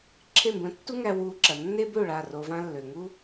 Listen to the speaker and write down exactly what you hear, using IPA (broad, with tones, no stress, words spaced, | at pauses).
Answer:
ǁʰe˦˨mbə̃˧ tːu˦ŋæ˧ wu˧ ǁɐ˨nːe˦bø˦˨ ɭa˦˨ro˧vã˦ lːø˨ŋu˦